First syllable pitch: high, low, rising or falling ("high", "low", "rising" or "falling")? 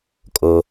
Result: low